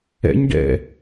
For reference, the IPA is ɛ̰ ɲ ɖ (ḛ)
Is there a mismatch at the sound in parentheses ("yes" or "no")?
yes